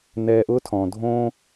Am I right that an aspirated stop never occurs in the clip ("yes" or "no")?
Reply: no